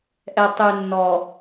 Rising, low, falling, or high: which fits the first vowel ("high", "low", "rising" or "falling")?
low